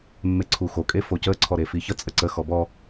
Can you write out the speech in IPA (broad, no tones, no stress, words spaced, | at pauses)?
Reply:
mːeǀʰuxo kʼefocə ǀʰɔɾefiçə t͡sʼəǀə xɔbɔ